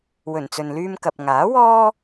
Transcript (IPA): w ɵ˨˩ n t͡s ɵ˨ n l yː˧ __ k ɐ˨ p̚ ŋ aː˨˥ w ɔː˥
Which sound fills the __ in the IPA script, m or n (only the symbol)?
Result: m